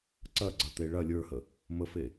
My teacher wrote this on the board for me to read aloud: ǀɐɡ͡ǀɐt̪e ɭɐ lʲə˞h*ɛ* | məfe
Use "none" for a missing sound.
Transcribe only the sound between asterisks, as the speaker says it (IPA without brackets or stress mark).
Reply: ə